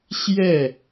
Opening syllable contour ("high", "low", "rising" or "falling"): falling